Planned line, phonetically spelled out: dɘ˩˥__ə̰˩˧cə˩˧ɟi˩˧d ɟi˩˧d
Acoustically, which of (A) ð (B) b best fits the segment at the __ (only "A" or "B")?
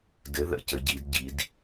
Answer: A